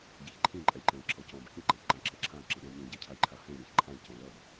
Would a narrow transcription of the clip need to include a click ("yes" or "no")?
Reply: yes